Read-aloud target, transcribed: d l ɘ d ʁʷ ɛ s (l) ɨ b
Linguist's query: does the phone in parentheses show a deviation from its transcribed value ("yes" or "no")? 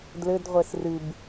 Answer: yes